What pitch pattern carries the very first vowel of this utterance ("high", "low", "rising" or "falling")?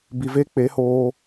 low